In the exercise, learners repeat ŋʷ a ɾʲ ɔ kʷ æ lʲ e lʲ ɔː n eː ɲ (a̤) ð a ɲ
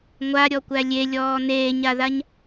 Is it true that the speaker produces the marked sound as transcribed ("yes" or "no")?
no